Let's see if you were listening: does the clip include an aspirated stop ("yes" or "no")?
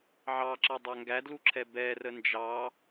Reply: yes